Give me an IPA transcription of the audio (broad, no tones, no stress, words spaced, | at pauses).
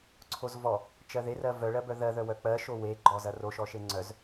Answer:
ǀʰozvɔ | t͡ʃɜðerɜ vœɭɜbœ ðɜðœ wœk͡pɜʃo weɡ͡ǃɔ zɐroʃɔʃe ŋ͡ǀœz